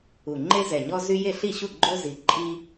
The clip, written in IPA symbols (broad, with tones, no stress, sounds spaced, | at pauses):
u˨˩ ŋ͡ǃ e˦ z ɛ˨˩ ɲ ɔ˦ z y˦ j e˥˩ ɬ i˥˩ ɕ u˥˩ ɡ͡ǃ o˦ z i˨˩ ǃʼ i˦